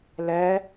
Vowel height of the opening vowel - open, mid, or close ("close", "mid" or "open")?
mid